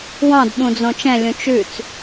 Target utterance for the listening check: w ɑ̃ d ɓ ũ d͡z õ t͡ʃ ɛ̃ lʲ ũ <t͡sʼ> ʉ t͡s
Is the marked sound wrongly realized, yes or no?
yes